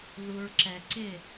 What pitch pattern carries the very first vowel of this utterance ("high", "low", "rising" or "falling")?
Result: low